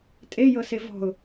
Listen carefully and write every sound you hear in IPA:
tʼ e j ɤ s e v ɔ̤ ʊ̯

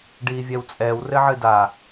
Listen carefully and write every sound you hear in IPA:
ɖ iː vʲ ɛ w t͡sʼ ɛː w r ɘ ʕ ɨ d a

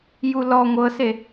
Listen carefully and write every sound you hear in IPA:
j u l ɔ ŋʷ ɤ s e

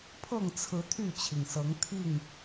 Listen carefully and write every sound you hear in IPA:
pʰ ɤ˥˨ ŋ t͡sʰ ɹ̩˨˦ t̪ʰ y˥˨ t͡ɕʰ i˩ ŋ s ɤ˨˦ ŋ t̪ʰ i˥˨ ŋ

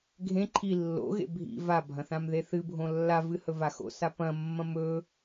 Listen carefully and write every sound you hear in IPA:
ɡʱ ẽ ǃʰ i lː o̰ ɣ ḛ bʱ ḭ v a bʱ ɐ̃ θ ã m ð e θ ɨ bʱ õ lː a v ɨ h ɵ v a x o̰ s a p ɐ̃ mː ɐ̃ m ɵ

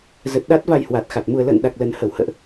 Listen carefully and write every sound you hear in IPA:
z ə˨˩ t̚ ɗ a˦˥ t̚ v a˧ j h w a˨˩ t̚ x a˨˩ t̚ m u˨˩ ə̯ l ə̰ː˧˨ n ɗ a˨˩ k̚ l ə˨˩ n h ə˧˩ w h ə̰ː˧˨ ʔ

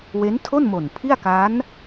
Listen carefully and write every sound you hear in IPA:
w e˦˥ n tʰ o˥˩ n m o˨˩ n pʰ i˥˩ a̯ k a˦˥ n

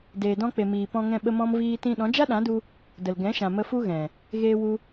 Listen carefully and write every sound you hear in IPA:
d eː˨ d ɔ̃˧ k͡p e˨ m iː˨ p ɔ̃˧ ŋ ɛ̃˧ ɓ ə˦ m ɔ̃˦ m v iː˦ t ĩ˦ ɗ ɔ̃˨˦ d͡ʒ a˦ ɗ ã˨˦ d u˧ | d ə˨ l ɡ ɛ̃˨˦ ʃ ã˨ m ə˧ f u˦ ɣ ɛ̃˨ | ɣ eː˧ w u˧

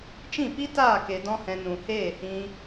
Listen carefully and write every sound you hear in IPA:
t͡ʃ ĩ˦˨ p i˦ t aː˦˨ k e˧ d ɔ̃˦ h ɛ̃˧ n ũ˨ h eː˦˨ h ĩ˧

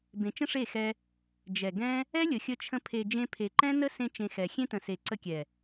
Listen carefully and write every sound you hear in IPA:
b ẽ˨ t͡ʃ ə̃˦ ʂ e˦˨ x ɛ˧ | d͡ʒ ɛ˨ ɡ ɛ̃˦ | ɛ˦ lʲ ə˨ xʲ ə˧ t͡ʃʰ ə̃˧ pʰ e˧ d͡ʒ ẽ˧ pʰ e˨ ǃ ɛ̃˦ n ə˦ s ẽ˦ t͡ʃ ẽ˧ x ɛ˨ xʲ ẽ˦ t ə̃˨ s e˨ ǀ ə˧ kʲ ɛ˨

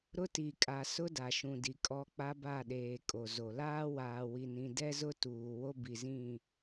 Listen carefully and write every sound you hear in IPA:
ɾ ʊ˦ t i˨ kʼ a˨ s ʊ˦ d a˨ ʃ ũ˨ d i˨ kʼ ɔ˦ k͡p a˦ b a˦˨ ɗ eː˨ kʼ o˨ z o˨ l aː˦ w aː˨ w i˨ n ĩ˨ d ɛ˦ z ʊ˦ t uː˨ w o˦ b i˨ z ĩ˦˨

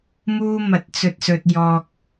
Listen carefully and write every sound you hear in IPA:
m uː˥ m ɐ˨˥ t̚ t͡s ɵ˨ t̚ s ɵ˨ t̚ j ɔː˧ k̚

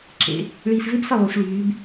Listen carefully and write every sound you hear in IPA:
ǁ ḛ˨˥ | ɭ iː˧ s v e˥ b s ə˥˨ lˠ y˨˥ s ɭ yː˨˥ b

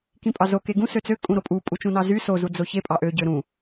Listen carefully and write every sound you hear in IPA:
k ĩ pʼ ɑ z o k e ɡ ũ s ø t͡s ø kʼ ũ ɾ o pʼ u pʼ u t͡ʃ ũ n ɑ z y s o z u d͡z o ç e pʼ ɑ ʔ ø ɟ ø ɾ ũ

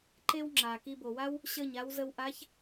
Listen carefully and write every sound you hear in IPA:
ǃ e˥ w ŋ͡ǁ aː˩ k i˧ b o˩ w a˥ w | ɕ əː˥˩ ɲ a˧˥ w z ə˧ w ʔ a˧˥ ç

